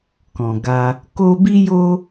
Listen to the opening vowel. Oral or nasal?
nasal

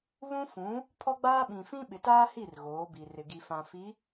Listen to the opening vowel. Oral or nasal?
nasal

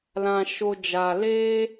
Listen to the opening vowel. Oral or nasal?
nasal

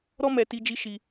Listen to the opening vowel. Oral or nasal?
oral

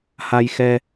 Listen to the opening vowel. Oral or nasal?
oral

